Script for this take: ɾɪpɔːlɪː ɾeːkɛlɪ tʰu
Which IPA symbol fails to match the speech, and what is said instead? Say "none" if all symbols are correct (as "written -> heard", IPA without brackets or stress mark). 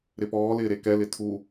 eː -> e